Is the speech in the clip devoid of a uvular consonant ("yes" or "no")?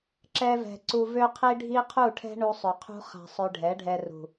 no